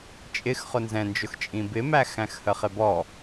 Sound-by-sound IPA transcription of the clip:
t͡ʃʼ ɪ x χ ʊ n z ɛ̃ n d͡ʒ ʊ x t͡ʃʼ ĩ b ɪ m æ x æ̃ x h ə χ ɪ b ɔ

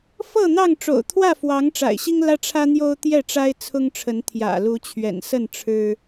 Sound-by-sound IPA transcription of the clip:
f ɤ˥˨ n̪ ɑ˥˨ ŋ ʈ͡ʂ o̰˨˩ ʊ̯ t̪ʰ w ä˥˨ f w ɑ˨˦ ŋ ʈ͡ʂ a̰˨˩ ɪ̯ ɕ i˦ ŋ l ä˦ ʈ͡ʂʰ ä˦ n̪ j o˦ ʊ̯ t̪ j ɛ˥˨ ʈ͡ʂ a˦ ɪ̯ t͡sʰ ʊ˦ ŋ ʈ͡ʂʰ ə˨˦ n t̪ʰ j ä̰˨˩ l u˨˦ t͡ɕʰ ɥ ɛ̰˨˩ n s ə˥˨ n ʈ͡ʂʰ ɻ̩˦

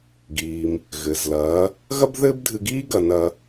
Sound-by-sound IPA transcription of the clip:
ɡ iː˩ m | ɣ ɘ˩ z l ɐː˩˧ | ɣ ɐ˥ b ð ɘː˥ b dʱ ɨ˧ ɡ iː˥ ɡ ɐ˩˧ n ɐ˩˧

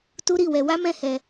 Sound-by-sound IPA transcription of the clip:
t u˦ ɾ i˦˨ w ɛ˧ w a˦ m ɛ̃˦ h ɛ˧

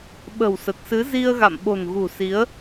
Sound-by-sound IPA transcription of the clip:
ɓ ə̤˨˩ w s ə˨˩ t̚ s ɨ˨˦ z i˧ ə̯ ɣ a̰˧˨ m ɓ o̤˨˩ n ɣ ṳ˨˩ s i˨˦ ə̯

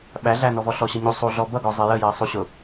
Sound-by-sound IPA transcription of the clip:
ɓ æ ɮ æ n ɔ v ɔ ɬ ɔ ɕ ʌ ɲ u sˤ u ɮ ɔ b ʌ ɡ ɔ zˤ ɪ j ə j ɜ sˤ u ɕ ʊ

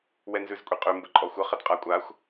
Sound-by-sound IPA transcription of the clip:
w ɛ n z ʉ z kʷʼ e qʼ ʉ m b ə ǃʼ ɔ xʷ ə χ ə d qʼ a kʷʼ a xʷ

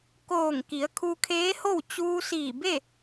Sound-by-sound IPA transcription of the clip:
k oː˧˩ ŋ k i˩˧ ə̯ kʰ u˧ kʰ eː˧˥ h o˥˨ w t͡ɕ uː˧ s iː˧˩ b e˥˨

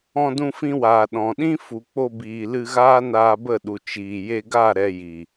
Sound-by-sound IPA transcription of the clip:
ɔ̃˧ d ũ˧ f ĩ˧ w aː˨ ɗ ɔ̃˨ ɗ ĩ˦ f u˨ k͡p o˧ b iː˨ l ɨ˧ ɣ aː˦ n aː˧ b ə˦˨ ɗ u˨ t͡ʃ iː˨ j e˧ ɡ a˦˨ ɾ ɛ˧ j i˨

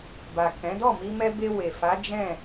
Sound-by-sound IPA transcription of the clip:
b a˨ k ɛ̃˨˦ d ɔ˦˨ m i˧ m ɛ˧ b e˧ w e˨ f a˨˦ d͡ʒ ɛ̃˦˨

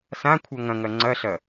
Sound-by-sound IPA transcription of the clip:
s ã kʷʰ ɐ ŋ ɐ̃ ŋ ɐ ŋ͡ǀ ɐ ɬ ɐ

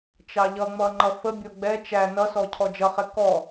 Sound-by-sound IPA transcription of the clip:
t͡ʃ ɑ ʎ ʌ ŋ͡m ʌ ŋ͡ǃ ʌ f ə bʲ ɔ ɡ͡b ɛ t͡ʃ æ n ʌ s ɔ cʰ ɔ d͡ʒ ʌ χ ɛ k ɔ

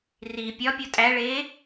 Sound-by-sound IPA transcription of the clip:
r i pʲ ɒ pʲ o tʼ æ ɭ eː

